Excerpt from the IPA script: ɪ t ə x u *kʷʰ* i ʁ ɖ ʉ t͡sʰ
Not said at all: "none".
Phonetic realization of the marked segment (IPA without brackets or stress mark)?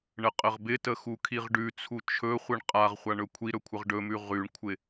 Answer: kʰ